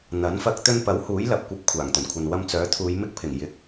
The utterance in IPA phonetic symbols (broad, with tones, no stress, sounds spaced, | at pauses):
n̪ ɐ˨˥ n f ɐ˧ k̚ t̪ ɵ˧ n p ɐ˨˥ w h uː˨˥ j l ɐ˨ p̚ kʷ ɐ˨˥ p̚ kʷʰ aː˨˩ ŋ t̪ ɵ˨˩ n kʷʰ ɐ˨ n w ɐ˧ m t͡s œː˨˥ t̪ʰ uː˨˧ j m ɪ˧ k̚ pʰ ɪ˨˩ ŋ j ɪ˨˥ k̚